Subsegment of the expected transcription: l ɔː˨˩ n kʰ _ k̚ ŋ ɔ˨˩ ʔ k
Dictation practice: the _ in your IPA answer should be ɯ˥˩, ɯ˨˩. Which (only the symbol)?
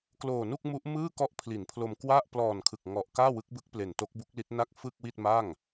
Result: ɯ˨˩